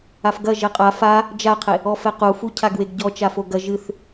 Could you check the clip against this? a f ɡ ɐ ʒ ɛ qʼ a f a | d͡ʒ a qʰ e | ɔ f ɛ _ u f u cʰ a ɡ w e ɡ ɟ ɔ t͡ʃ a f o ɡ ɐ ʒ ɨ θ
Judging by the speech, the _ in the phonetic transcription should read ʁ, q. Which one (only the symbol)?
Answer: q